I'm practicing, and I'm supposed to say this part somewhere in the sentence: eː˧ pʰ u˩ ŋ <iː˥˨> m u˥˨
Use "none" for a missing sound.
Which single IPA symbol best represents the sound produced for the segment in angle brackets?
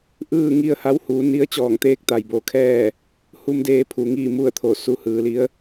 iː˥˨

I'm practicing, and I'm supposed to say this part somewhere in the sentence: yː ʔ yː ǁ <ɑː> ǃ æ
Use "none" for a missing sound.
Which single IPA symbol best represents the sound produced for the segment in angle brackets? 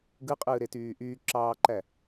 ɑː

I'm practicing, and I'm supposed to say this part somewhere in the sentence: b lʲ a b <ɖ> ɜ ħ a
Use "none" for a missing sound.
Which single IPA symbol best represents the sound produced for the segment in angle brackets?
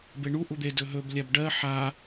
ɖ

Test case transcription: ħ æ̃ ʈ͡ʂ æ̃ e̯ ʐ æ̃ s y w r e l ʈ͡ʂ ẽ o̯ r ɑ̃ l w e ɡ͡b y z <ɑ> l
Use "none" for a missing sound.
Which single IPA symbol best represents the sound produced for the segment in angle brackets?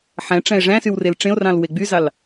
ɑ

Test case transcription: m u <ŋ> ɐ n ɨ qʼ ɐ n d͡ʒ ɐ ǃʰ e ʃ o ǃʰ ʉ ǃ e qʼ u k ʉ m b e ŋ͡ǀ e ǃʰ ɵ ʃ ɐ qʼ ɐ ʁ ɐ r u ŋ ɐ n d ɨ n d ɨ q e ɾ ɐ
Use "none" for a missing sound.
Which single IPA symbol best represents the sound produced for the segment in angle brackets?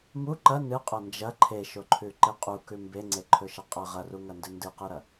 ǃ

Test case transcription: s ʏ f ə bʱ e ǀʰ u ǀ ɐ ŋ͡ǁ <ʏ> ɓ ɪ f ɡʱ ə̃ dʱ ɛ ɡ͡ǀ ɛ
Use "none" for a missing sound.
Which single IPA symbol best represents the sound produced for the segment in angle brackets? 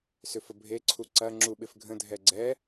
u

